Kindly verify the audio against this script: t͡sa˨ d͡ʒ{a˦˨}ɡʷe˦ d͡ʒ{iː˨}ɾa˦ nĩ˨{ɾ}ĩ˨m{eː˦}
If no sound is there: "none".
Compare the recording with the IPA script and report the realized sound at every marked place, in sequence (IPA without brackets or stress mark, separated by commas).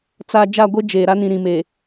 a˦˨, eː˨, ɾ, eː˨